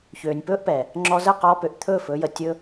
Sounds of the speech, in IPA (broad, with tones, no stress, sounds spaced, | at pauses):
ç øː˨ nʲ p ɵː˦ ʔ p ɛ˨ | ŋ͡ǁ ɔ˧ z ə˦˨ q ɔː˧ p ø˨ ʔ t̪ʰ ɵː˦˨ f ɵ˧ j ə˨ tʲ ɵ˧